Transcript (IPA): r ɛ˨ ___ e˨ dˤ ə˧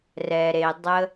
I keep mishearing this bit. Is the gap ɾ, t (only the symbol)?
ɾ